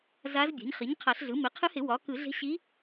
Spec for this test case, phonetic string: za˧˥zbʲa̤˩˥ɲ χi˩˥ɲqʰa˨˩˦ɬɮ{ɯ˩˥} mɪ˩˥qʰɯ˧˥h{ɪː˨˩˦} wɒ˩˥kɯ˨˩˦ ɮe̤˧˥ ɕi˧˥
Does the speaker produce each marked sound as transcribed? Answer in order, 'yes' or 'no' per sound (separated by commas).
yes, no